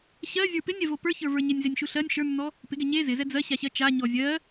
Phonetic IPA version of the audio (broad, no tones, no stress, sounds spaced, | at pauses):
ɕ ɜ zʲ ə˞ p ɪ nʲ ɛ v o p ə˞ ç ə˞ v ə˞ ɲ ɪ nʲ z e nʲ ʃ u ɬ ɜ nʲ ʃ ə˞ nː ɔ | p ɪ ɡ ɛ ɲ e z ɪ z ɛ d͡z ɜ ɕ a ɕ ɜ t͡ʃ a ɲ ɔ zʲ ɜ